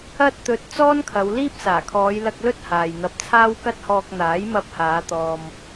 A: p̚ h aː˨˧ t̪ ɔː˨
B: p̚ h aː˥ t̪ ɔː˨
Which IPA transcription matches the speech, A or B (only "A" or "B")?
A